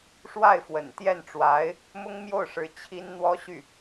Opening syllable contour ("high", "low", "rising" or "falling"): falling